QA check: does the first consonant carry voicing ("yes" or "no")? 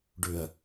yes